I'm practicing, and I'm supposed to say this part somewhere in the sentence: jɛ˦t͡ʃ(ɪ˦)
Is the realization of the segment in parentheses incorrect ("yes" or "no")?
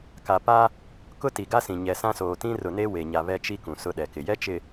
yes